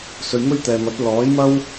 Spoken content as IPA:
sɵ˧ɥmɵ˥ɥ t̪ɛː˨mɐ˨˥t̚ lɔː˨˥jmɐ˥w

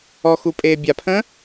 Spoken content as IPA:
ɔxu pʼeːbʲapʰə̃

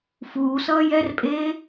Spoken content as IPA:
fuːsʌː jɛrpʼeː

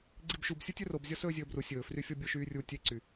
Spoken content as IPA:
ɡ͡ǀibʃubsʲu tʲɵrob zʲɔsɵːzʲɵːbru sʲɵːfryfʲɔ bʲoʃyːrʲu tʲeǀy

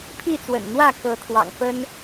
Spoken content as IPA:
pʰi˥˨t͡swə̰˨˩nn̪wä˥˨ kɤ˨˦t̪ʰwɑ̰˨˩ŋfə˦n

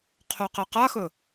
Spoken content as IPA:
qʰoqɛqaxɵ

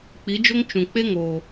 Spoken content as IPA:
k͡pi˨˦d͡ʒo˦ŋ t͡ʃũ˨ k͡pe˦ŋoː˨

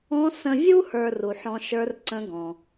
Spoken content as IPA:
ɔ̃˧˥ sə̃˧vʲu˥ hə˞˧ ru˩ħɔ̃˧ ʃə˞˧˥rǀə̃˧˥ɡɔ̃˩

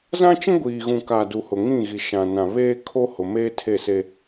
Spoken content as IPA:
zã˦t͡ʃĩ˦ɡʷiː˨ɣũ˨ ka˨ du˨hʊ˨ŋĩ˦˨ ɣi˨ ʃã˨nã˨ βeː˦kʰo˦hʊ˨ meː˦tʰe˦˨se˦

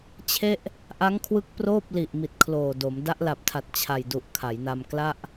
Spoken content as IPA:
t͡ɕʰe˥˩ʔ | ʔa˦˥ŋkʰwɯ˦˥k̚ proː˥˩p̚li˨˩ʔ mi˨˩t̚kʰloː˨˩do˩˦m da˦˥ʔla˨˩p̚tʰa˨˩t̚ t͡ɕʰa˨˩jdu˨˩ʔ kʰa˩˦jna˧m kla˥˩ʔ

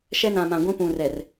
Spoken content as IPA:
ʃɛ˦nã˨mã˨ ɡʷĩ˦pũ˨rɛ˨r

